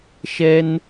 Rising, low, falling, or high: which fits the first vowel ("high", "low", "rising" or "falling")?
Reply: high